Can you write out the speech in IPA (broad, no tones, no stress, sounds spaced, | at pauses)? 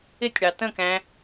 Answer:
ɪ tʲ ɽ ɑ t ə̃ k æ̃